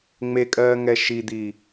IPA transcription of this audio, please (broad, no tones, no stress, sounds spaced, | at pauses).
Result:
ŋ͡m e kʼ ɜː ŋ ɛ ʃ i d̪ i